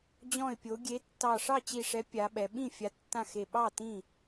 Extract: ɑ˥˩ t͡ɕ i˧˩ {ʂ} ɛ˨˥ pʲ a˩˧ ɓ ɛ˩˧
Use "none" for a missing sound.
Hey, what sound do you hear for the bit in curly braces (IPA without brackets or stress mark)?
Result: ʂ